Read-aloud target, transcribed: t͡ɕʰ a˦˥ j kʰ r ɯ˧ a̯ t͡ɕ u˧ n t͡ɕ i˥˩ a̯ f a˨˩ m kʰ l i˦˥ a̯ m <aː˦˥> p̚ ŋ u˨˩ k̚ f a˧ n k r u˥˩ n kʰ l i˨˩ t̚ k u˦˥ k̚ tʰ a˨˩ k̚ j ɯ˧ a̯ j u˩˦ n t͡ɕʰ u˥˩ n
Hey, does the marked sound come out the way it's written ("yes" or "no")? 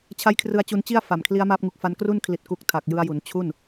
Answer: yes